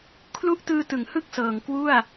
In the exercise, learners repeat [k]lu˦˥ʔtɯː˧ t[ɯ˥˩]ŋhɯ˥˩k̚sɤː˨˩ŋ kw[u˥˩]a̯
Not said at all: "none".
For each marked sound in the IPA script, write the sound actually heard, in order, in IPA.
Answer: kʰ, ɯ˩˦, u˥˩

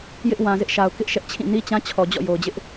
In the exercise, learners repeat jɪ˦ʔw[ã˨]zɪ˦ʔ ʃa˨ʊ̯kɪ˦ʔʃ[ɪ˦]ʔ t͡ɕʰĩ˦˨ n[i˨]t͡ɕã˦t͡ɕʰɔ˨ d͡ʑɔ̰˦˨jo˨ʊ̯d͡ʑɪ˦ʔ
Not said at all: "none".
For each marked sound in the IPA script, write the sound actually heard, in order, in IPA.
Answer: ã˨, ɛ˦, i˦

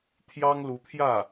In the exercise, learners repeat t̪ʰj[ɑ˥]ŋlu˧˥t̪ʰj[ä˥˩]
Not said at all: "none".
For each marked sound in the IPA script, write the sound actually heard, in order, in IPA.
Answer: ɑ˥, ä˥˩

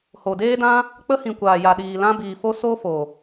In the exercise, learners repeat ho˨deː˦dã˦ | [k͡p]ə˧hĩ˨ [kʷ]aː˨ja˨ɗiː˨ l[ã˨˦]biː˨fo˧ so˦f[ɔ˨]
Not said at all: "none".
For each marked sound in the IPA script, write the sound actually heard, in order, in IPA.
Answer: k͡p, kʷ, ã˧, o˨

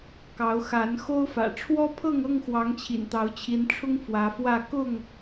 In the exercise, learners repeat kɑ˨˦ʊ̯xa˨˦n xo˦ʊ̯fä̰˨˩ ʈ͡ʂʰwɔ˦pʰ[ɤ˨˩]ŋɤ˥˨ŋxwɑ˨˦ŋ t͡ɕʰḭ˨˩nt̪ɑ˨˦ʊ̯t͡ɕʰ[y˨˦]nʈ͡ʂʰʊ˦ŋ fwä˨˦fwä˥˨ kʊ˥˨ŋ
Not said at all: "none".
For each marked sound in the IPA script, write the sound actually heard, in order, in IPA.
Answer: ɤ˥˨, i˨˦

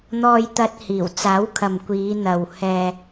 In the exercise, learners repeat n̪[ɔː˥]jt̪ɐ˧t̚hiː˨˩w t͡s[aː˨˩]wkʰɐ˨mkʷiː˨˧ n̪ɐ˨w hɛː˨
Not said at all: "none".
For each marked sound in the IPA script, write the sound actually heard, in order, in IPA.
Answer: ɔː˧, aː˨˥

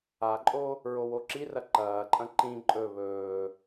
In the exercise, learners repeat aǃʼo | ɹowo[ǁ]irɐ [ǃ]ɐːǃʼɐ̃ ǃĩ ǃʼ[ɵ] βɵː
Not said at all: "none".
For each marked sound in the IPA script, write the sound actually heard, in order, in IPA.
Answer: ǁ, ǃ, ɵ

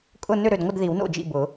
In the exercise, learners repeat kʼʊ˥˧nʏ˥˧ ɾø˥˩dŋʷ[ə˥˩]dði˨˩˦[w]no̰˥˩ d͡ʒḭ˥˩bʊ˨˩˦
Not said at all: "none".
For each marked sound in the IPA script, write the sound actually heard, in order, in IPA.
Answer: ə˥˧, w

